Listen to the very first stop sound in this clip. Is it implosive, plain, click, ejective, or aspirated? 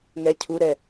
aspirated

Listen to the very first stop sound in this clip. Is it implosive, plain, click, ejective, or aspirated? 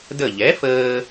plain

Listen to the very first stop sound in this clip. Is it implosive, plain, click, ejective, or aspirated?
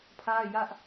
aspirated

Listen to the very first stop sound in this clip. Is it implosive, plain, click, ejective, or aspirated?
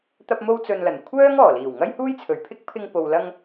plain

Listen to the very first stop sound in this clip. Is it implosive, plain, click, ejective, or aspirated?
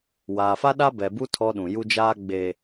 implosive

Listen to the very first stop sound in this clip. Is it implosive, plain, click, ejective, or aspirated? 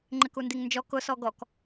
click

